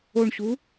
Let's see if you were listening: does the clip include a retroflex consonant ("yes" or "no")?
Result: yes